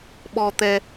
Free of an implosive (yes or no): no